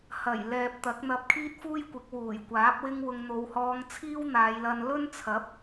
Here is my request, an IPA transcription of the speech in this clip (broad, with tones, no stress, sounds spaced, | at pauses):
h ɐ˨˩ j l ɛː˨ p̚ t̪ ɐ˨˥ k̚ n̪ ɐ˧ p̚ kʰ iː˥ t̚ f uː˥ j kʷ ɪ˨˥ k̚ w uː˨˩ j kʷ aː˨˥ p̚ w ɪ˥ ŋ w ʊ˧ ŋ n̪ o˨˧ w h ɔː˧ ŋ t͡sʰ iː˥ w n̪ aː˨˧ j l ɐ˧ n l ɵ˥ n t͡sʰ ɐ˨˥ p̚